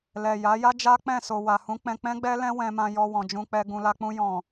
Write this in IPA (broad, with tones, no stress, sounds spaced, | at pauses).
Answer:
l ɛ˨ j a˨˦ j a˦ d͡ʒ a˦ k͡p ɛ̃˦˨ s o˨ w a˨ h ũ˨˦ k͡p ɛ̃˧ k͡p ɛ̃˦ ɡ͡b ɛ˦ l ɛ̃˦ w ɛ̃˧ m ã˧ j ɔ˧ w ɔ̃˨ d͡ʒ ũ˧ k͡p ɛ˧ ɡ ũ˨ l a˧ k͡p ũ˧ j ɔ̃˨